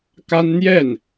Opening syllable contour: high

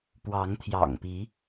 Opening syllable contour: rising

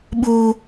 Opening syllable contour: high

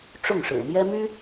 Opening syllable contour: falling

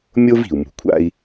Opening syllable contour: high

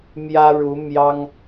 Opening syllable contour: high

